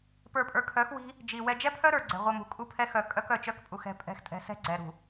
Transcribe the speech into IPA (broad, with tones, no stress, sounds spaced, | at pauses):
p ə˞˨ pʼ ə˞˨ kʰ œ˨˦ x w i̤˦ | d͡ʒ i˨ w ɛ˨ d͡ʒ ɛ˦ pʰ œ˦ ɾ ə˞˨ ɡ͡ǀ ɛ̤˨ ʁʷ œ˨ m ṳ˨ kʼ u˦˨ pʰ ɛ˦ x œ˨ kʼ œ˦ k œ˨ t͡ʃ œ˦ k pʼ u˨ x ɛ̤˨ pʼ ɛ̤˨ x tʼ ɛ̤˨ s ɛ̤˦ ɡ͡ǀ ɛ˨ ɾ ṳ˨